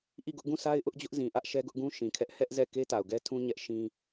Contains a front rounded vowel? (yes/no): no